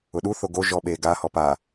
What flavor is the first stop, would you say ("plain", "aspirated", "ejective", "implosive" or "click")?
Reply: implosive